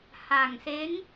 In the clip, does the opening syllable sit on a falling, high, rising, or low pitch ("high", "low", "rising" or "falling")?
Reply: low